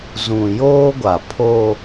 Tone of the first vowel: low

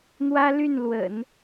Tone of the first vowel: high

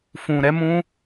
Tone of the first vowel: low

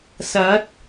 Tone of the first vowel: rising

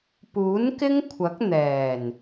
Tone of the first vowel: rising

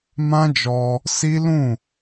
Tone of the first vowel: high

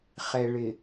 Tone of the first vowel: low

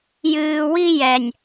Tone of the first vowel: low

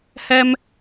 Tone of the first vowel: high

